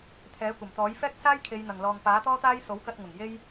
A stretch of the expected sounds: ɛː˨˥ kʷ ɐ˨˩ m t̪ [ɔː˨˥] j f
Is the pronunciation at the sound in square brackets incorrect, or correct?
correct